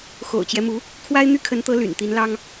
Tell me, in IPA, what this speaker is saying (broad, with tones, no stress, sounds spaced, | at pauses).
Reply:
x o̰˨˩ ʊ̯ t͡ɕ j ɛ˦ m u˧˥ | kʰ w a˥ ɪ̯ n̪ y˥˩ kʰ ə˧˥ n t̪ ɤ˧˥ l y̰˨˩ n t̪ i˧˥ n l ɑ˥ ŋ